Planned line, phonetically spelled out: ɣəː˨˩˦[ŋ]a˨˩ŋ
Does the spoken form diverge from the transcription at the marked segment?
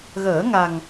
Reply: no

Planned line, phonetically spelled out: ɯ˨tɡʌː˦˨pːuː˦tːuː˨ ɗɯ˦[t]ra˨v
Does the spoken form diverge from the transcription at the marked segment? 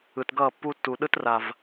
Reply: no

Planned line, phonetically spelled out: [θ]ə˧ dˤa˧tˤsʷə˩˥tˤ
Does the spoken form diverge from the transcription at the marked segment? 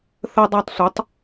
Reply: no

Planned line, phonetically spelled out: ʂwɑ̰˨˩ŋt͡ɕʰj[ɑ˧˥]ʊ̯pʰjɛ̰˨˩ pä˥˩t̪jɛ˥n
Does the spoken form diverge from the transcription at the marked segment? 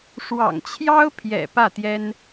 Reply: yes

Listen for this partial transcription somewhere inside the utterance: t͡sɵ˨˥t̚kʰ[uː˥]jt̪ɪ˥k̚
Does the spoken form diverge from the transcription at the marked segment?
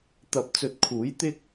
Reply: yes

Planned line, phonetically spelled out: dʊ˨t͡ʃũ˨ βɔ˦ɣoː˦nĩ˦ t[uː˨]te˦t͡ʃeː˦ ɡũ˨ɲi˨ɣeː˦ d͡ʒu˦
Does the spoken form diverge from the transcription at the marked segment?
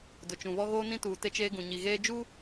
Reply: no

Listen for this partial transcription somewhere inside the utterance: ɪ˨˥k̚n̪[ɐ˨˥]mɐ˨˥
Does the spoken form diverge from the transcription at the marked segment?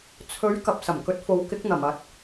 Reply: yes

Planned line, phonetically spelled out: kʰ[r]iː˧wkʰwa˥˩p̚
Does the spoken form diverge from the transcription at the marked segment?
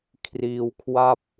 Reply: no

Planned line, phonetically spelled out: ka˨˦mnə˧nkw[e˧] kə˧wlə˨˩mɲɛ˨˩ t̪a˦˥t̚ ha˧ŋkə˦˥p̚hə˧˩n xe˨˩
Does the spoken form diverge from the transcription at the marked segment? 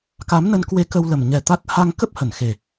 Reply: no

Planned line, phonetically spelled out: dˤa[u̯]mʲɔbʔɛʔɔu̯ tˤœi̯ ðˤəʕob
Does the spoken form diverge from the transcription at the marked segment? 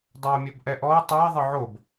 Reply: no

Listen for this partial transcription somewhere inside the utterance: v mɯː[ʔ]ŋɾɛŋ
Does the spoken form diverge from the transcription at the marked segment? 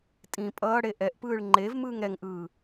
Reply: yes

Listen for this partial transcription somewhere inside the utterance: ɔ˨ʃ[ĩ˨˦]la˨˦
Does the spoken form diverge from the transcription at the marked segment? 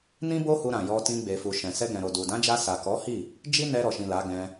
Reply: yes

